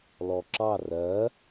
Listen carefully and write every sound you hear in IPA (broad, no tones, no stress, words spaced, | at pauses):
lɔǁɑ rɜ